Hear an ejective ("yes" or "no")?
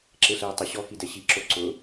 no